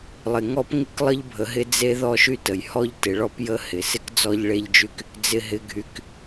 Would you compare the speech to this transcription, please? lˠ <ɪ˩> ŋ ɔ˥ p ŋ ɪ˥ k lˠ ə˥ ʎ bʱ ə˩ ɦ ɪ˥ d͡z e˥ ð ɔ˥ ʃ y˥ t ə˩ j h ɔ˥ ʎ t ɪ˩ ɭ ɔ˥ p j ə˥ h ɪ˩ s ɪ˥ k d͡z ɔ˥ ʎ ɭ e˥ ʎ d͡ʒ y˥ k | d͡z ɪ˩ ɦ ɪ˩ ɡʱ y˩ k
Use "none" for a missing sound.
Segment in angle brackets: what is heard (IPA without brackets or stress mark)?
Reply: ɪ˩